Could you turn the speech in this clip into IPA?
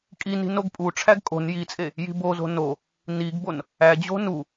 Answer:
kʼ i n i̤ n o ɡ pʼ u ʈ͡ʂʰ æ ɡ kʼ o̤ n j i t͡sʼ e | j i̤ b o z o̤ n o | n i ɡ b o n | æ d͡ʑ o̤ n u

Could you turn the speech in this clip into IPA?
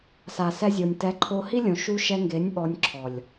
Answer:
s a˨ s ɛ˧ zʲ o˨ nʲ t ɛ˨˦ ǃʰ o˧ h i˦ lʲ õ˨ ʃ u˧ ʃ ɛ˧ ŋ ɡ e˨˦ nʲ ɓ ɔ˧ nʲ ǁʰ ɔ˨ lʲ

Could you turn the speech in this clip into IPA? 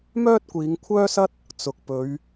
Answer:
m œː˥ t̚ kʷ iː˨˧ ŋ kʷʰ œː˥ s ɐ˥ t̚ | t͡s ʊ˨ k̚ p ɵ˨˧ ɥ

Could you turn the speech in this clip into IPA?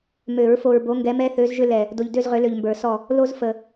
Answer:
m ø˨˩˦ ɹ f o˨ ɹ b o˨˦ ŋ ɡ ɛ˨˦ m ɛ˦ θ ø˨˦ z ʒ ʏ˦ l ɛ˨ | d o˨ ʎ d ø˦˨ z ʁ ʏ˨˩˦ l ø˨ ʎ m b ə˞˨˩˦ s ɔ˦˨ | l o˦ z f ə˨

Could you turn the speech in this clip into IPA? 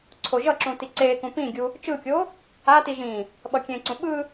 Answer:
ǀʰ o ʒ ʌ ǁ ũ t i ǀ e k ũ p ĩ ɡʲ u | t͡ʃ ɯ kʲ o | a t i ʒ ĩ | ɓ ʌ kʲ ẽ ǀ ũ ɓ ɯ

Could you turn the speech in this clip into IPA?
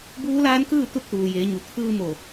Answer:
b uː˧˥ l aː˧˥ n k ɯː˥˨ t̪ u˥˨ t̚ t̪ uː˩ j eː˩˧ ɲ u˩ t̪ʰ ɯː˧ m o˧˩

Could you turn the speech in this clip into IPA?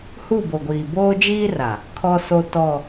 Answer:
h u˦˨ b o˨ ɡʷ iː˨ b oː˦ d͡ʒ iː˦ r a˨ | kʰ ɔ˦ s o˦ t ɔ˦˨

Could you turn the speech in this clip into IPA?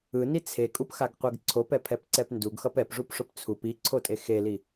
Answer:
ɯ n i t͡sʰ e kʼ u p x a ɡ qʷ ɛ ɡ ǀʰ o p ɛ pʰ ɛ p ǀ ɛ p n d u ɡ x ʌ p ɛ p ʐ u p ʂ o p t͡sʰ u p i ǀʰ o tʼ e x e l i

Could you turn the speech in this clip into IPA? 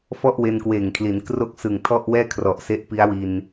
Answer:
f ɔ˥˩ ʔ w e˧ n k w eː˨˩ ŋ kʰ l i˩˦ n k r o˥˩ k̚ s ɯ˨˩ ŋ tʰ ɔ˥˩ ʔ w ɛː˥˩ kʰ r ɔ˨˩ ʔ s e˦˥ ʔ p i˦˥ a̯ w i˧ n

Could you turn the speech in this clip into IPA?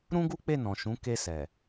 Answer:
ɾ ũ˦ ɡ u˦ k͡p e˦˨ n ɔ̃˨ ʃ ũ˨˦ k e˧ s ɛ˨

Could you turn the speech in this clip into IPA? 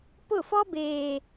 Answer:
p ʊ˦˨ f ɔ˦ b eː˨

